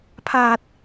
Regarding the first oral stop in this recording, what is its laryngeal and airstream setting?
aspirated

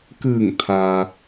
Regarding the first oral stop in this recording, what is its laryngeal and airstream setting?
plain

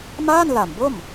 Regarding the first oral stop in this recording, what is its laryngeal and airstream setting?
plain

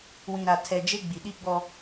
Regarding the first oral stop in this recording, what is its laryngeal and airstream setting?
aspirated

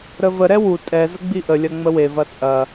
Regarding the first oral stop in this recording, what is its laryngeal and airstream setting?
ejective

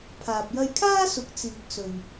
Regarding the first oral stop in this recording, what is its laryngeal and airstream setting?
aspirated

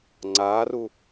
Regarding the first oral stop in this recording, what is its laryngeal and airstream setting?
click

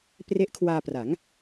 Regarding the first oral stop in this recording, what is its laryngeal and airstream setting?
plain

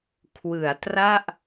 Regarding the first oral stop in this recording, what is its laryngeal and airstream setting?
aspirated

